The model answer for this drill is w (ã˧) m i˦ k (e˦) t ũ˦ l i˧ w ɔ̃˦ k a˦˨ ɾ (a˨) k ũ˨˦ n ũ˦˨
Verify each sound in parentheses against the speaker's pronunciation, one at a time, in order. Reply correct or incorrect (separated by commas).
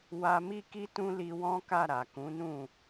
incorrect, incorrect, correct